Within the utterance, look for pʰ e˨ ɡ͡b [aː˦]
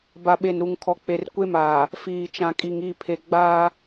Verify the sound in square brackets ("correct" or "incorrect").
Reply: correct